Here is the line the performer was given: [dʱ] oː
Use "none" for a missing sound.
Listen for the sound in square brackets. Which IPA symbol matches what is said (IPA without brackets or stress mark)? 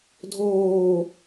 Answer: dʱ